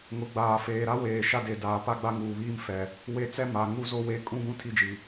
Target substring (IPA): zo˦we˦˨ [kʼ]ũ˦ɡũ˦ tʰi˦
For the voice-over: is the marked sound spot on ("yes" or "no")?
yes